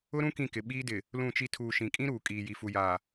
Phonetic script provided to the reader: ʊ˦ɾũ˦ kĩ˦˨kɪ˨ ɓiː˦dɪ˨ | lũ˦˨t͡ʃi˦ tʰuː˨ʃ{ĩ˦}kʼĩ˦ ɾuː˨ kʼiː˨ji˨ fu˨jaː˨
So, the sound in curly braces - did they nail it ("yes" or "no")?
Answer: no